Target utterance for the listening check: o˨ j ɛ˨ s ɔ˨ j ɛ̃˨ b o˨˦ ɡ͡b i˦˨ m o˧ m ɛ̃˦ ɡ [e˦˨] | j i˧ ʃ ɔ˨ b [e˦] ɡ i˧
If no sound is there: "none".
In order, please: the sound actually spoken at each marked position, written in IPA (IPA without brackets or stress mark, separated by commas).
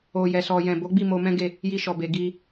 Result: e˦˨, e˨